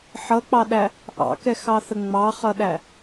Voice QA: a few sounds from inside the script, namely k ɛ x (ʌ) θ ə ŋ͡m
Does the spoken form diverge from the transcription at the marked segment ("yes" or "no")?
yes